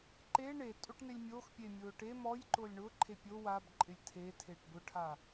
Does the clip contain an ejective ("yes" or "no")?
yes